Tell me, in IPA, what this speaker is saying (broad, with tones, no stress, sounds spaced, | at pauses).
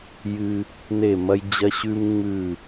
j ɨ˧ | n e˦˨ m ɐ˦ j d͡ʑ ɐ˦ ɕ ʉ˦ m ŋ͡m ʉ˦˨